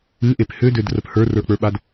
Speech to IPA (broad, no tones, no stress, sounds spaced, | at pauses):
ɨ ʔ e p h ø d ø d r ə p h ə˞ r ə˞ k͡p ə˞ ɓ a d